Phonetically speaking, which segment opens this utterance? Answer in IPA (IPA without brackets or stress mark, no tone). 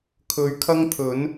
kʰ